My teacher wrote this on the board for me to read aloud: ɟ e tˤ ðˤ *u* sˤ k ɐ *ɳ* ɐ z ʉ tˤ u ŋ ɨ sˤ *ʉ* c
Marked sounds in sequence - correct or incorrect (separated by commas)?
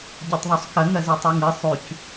correct, incorrect, correct